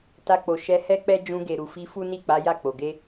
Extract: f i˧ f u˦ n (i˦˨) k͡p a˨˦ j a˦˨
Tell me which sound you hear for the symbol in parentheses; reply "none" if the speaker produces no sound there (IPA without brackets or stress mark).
i˦˨